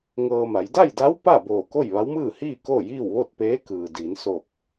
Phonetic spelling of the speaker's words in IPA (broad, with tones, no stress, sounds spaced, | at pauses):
ŋ ɤː˧ m a˩˧ j d a˥˨ j d a˧˥ w p a˥˨ b oː˧˩ k o˥˨ j ʋ a˧˥ w m ɯː˥˨ h iː˥˨ k o˥˨ j iː˥˨ w ʋ o˥˨ t̚ p eː˧˥ k ɯː˩ d iː˩˧ n s o˧˩ k̚